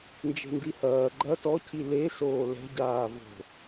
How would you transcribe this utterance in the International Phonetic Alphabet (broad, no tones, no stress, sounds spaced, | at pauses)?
n d͡ʒ e̤ n d i h ɐː ɡ͡ǃ ɐ t ɔ cʰ i l e s oː l ɛ̤ ɟ aː v o̤